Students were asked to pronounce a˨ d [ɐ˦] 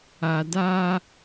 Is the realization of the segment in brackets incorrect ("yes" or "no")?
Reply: yes